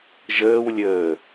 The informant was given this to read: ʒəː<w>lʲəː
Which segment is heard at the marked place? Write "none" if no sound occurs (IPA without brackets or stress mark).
w